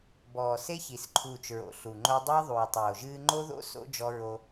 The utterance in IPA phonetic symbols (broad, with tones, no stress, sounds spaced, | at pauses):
b ɔː˨ s e˦ ç i˨ s ǃʰ uː˨ t͡ʃ ɹ o̰˨ ɬ u˨ ŋ͡ǃ o˦ dˤ ɨː˦ ðˤ uː˨ tˤ oː˨ ʒ ɨː˦ ŋ͡ǃ o˦ ð o̰˦ s o̰˦ d͡ʒ ɔ˦ ɹ o˦